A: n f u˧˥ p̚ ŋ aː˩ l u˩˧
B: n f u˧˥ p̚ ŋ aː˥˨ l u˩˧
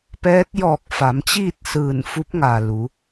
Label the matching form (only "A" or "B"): A